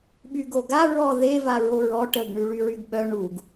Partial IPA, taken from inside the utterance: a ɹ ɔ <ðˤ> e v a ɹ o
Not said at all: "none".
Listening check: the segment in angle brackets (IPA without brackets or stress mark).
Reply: ð